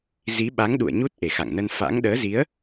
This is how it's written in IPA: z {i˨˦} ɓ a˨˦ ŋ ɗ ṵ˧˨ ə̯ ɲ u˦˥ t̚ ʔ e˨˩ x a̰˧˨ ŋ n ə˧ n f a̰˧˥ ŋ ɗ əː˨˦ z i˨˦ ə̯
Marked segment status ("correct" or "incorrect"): correct